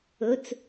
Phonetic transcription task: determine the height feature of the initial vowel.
mid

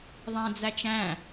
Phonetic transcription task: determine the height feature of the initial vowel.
low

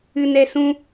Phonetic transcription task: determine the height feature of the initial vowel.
high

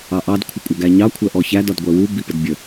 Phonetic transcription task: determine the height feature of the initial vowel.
low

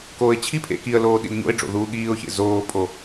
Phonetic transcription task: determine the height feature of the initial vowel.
mid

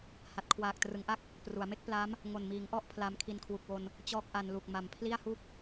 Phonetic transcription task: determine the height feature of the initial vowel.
low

